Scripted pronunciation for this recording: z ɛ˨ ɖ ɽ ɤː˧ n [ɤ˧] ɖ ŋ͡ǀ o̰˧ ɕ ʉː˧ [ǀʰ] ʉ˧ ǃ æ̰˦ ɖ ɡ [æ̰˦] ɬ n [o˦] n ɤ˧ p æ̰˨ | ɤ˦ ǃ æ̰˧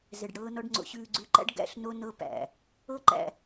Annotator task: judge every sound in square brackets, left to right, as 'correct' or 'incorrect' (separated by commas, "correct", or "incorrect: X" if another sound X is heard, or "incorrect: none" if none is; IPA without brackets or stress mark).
incorrect: ɔ˧, incorrect: ɡ͡ǀ, incorrect: æ̰˧, incorrect: o˧